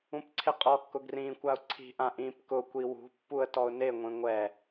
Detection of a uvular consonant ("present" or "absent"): present